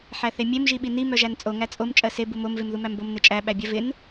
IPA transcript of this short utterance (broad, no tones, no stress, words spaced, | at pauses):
ħæθemʲem ʒiɓini mœʒænt͡sʼo ŋæt͡sʼom t͡ʃʼɜse bumom vemðumæmbom net͡ʃʼæ ɓæbʲɜvɪn